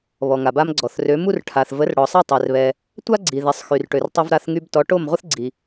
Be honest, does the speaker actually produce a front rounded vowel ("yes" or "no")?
yes